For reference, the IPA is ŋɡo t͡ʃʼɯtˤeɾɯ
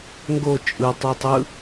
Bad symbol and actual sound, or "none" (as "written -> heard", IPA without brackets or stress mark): ɾ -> tˤ